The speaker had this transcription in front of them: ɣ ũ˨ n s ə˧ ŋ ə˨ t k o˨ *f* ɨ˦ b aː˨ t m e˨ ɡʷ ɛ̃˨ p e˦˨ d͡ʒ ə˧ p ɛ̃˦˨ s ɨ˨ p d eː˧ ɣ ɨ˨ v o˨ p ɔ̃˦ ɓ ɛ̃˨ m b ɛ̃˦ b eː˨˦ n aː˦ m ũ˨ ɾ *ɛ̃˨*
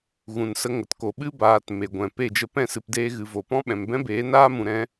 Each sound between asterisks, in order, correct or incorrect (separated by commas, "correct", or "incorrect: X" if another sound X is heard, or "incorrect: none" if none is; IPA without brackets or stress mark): incorrect: ɓ, incorrect: ɛ̃˧